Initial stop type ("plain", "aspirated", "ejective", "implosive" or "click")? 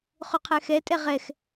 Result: aspirated